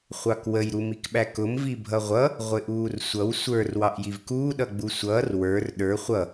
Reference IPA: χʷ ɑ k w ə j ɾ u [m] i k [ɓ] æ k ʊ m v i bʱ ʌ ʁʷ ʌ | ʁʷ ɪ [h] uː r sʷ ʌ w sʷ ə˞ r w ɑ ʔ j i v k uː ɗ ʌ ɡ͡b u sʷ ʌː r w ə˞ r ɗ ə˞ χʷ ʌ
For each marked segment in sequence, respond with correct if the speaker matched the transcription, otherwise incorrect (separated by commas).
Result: correct, correct, incorrect